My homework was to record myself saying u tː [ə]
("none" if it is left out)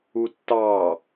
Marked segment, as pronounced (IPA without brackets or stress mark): ɑ